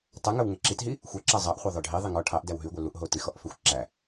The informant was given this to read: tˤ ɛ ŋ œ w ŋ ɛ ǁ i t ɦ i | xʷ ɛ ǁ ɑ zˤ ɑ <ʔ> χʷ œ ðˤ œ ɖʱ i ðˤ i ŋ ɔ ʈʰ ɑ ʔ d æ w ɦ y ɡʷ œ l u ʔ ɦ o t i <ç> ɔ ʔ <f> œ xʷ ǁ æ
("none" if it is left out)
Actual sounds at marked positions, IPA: ʔ, x, f

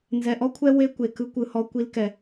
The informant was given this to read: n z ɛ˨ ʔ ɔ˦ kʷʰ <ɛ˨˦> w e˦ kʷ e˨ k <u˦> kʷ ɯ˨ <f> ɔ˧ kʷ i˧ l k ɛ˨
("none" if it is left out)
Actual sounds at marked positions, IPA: ɛ˦, ɯ˦, h

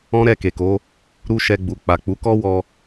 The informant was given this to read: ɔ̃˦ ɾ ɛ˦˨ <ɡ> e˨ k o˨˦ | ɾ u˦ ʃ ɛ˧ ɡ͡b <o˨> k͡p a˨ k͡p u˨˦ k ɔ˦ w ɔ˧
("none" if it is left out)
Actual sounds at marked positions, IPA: k, u˨

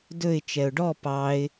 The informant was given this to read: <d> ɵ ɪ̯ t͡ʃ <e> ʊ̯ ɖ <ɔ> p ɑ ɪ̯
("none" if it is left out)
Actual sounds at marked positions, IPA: d, ɛ, ɔ

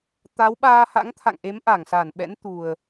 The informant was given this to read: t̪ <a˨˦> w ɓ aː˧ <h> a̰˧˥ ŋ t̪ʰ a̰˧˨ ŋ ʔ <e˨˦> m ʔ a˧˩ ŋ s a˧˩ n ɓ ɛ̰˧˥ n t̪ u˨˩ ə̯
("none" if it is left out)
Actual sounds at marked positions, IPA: a˨˦, h, e˨˦

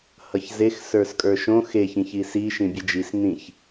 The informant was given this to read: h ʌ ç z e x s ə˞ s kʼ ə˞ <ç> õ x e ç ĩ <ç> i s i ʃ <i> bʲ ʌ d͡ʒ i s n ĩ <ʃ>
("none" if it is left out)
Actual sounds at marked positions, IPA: ʃ, ç, ĩ, ç

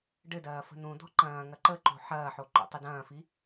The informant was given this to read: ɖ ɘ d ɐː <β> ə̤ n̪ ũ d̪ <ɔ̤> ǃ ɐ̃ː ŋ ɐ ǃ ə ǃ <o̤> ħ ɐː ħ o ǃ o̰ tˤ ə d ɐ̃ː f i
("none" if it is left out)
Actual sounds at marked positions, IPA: f, ɔ̤, o̤

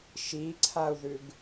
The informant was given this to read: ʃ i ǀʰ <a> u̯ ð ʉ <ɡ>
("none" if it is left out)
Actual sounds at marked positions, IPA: a, ɡ

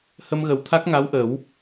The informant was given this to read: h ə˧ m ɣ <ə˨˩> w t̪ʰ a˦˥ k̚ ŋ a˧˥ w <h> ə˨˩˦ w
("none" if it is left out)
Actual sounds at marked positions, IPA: ə˨˩, ʔ

